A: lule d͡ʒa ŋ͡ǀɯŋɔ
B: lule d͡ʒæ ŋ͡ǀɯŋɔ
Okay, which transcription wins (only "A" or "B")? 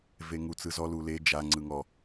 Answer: A